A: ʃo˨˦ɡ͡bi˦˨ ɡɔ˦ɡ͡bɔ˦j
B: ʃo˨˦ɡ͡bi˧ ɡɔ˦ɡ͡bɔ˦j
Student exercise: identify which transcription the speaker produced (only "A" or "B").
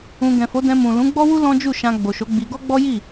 B